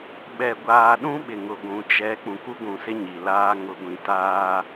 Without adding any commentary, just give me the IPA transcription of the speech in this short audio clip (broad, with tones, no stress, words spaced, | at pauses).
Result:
ɓɛ˨ɡʷaː˨ɗũ˦ ɓɪ˨ŋʊ˨ɡʷũ˨ t͡ʃɛ˨˦ k͡pũ˨ku˦ɡʷũ˨sɪ˦ ɲi˨laː˦ ŋʊ˨ɡʷĩ˨taː˦